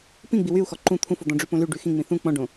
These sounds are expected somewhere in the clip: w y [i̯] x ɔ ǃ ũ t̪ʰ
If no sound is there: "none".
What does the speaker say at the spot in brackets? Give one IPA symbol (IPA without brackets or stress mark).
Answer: u̯